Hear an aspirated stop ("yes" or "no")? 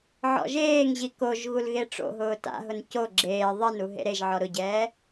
no